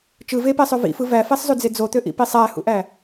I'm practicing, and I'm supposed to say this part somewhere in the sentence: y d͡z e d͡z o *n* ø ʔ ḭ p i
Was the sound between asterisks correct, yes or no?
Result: no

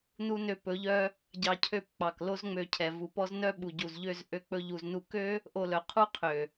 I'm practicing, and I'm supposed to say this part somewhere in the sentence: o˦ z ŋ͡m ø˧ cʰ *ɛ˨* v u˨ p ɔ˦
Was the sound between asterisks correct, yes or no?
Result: yes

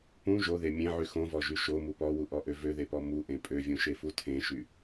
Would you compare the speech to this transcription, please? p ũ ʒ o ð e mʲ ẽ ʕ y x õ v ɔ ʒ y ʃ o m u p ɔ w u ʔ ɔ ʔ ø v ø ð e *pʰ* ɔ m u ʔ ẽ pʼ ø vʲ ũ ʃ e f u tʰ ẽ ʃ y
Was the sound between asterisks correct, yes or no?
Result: no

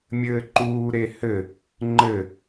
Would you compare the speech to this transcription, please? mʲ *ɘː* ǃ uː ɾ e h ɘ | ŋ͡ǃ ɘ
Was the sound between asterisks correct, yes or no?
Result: yes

